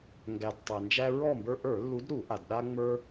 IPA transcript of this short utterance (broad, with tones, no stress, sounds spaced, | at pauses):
ŋ ɡ æ˩ d tˤ æ˩ n d͡ʒ æ˦ ɹ ɔ˥˨ m b ə˞˦ ʔ ə˞˧˩˧ lː u˨˦ d ɾ u˧˩˧ ʔ a˩ d ɗ a˦ ŋ͡m ə˞˦